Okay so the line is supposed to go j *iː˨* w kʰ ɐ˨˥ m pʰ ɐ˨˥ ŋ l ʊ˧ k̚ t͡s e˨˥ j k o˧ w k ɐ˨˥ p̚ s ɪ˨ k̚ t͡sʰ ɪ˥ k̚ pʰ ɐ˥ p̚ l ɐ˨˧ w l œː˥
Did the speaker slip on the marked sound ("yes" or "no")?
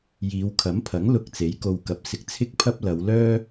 yes